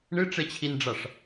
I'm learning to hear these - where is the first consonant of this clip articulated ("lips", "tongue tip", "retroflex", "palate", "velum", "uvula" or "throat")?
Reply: retroflex